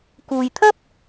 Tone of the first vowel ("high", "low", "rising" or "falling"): low